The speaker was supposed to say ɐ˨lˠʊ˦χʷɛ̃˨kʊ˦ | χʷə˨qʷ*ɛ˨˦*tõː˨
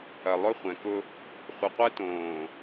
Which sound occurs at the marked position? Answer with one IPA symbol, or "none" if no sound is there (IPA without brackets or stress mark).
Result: ɛ˦